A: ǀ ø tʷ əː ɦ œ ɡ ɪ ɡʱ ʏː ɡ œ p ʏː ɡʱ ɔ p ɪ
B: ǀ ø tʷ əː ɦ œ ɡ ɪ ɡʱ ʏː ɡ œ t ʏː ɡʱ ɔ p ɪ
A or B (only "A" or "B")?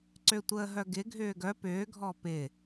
A